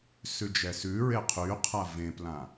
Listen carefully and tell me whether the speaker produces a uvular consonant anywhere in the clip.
yes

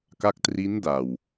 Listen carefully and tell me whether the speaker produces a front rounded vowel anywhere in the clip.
no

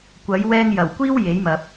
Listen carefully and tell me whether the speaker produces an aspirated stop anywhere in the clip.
no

